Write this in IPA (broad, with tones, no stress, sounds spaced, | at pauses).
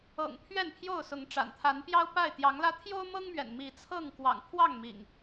ɤ̰˨˩ ŋ pʰ ɥ ɛ˥˨ n pʰ j o˥˨ ʊ̯ s ʊ˨˦ ŋ ʈ͡ʂ a̰˨˩ n t̪ʰ a˨˦ n p j ɑ˦ ʊ̯ p a˥˨ ɪ̯ t̪ j ɑ˨˦ ŋ l ä˦ t̪ʰ j o˦ ʊ̯ m ɤ˦ ŋ m ɥ ɛ̰˨˩ n m i˨˦ t͡sʰ ɤ˥˨ ŋ k w ɑ̰˨˩ ŋ pʰ w ɑ˥˨ ŋ m ḭ˨˩ ŋ